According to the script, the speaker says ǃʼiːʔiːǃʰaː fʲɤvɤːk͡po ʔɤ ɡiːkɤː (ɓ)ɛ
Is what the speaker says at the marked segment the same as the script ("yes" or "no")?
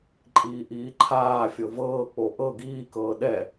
no